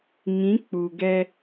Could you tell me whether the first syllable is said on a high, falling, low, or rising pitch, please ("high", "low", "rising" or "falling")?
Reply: rising